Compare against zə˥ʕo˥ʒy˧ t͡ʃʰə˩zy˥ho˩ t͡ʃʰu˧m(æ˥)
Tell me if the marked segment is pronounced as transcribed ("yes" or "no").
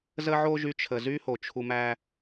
yes